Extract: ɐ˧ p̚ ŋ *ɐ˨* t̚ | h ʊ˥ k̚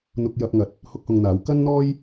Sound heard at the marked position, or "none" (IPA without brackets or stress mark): ɐ˨